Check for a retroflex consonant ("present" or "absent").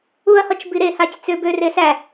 absent